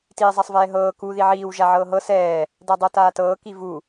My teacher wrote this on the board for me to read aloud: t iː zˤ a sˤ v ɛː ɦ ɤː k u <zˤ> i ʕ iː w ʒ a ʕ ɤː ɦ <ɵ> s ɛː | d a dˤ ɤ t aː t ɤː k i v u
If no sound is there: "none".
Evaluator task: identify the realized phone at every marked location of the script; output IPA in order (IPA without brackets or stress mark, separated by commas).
ð, ɤ